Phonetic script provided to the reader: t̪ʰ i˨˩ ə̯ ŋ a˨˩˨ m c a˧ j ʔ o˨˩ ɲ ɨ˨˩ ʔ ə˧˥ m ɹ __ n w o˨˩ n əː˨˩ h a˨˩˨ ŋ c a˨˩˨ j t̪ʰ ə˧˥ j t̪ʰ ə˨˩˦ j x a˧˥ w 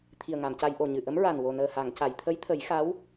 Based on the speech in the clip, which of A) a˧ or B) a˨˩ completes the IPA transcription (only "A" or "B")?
B